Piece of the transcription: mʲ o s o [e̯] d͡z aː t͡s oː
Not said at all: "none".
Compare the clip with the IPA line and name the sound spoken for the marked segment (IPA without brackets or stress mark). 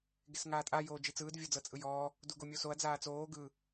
ɐ̯